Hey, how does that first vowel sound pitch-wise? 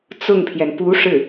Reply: falling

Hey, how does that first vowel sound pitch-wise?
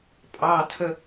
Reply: low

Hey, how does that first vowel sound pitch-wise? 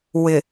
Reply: low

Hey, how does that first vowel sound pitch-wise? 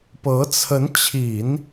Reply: rising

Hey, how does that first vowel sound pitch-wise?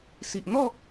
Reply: low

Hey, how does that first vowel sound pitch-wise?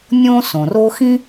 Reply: high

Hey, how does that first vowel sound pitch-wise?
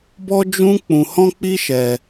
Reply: high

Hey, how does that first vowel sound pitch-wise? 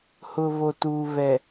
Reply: low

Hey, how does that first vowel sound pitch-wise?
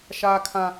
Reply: high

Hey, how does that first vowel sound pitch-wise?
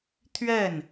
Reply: falling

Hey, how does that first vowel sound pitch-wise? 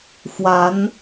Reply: rising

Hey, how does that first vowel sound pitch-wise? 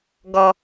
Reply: low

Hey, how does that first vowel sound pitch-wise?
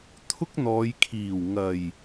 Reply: high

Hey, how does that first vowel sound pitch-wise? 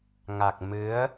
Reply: low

